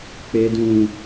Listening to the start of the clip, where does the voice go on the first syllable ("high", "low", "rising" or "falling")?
low